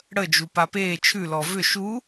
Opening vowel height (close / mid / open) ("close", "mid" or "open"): mid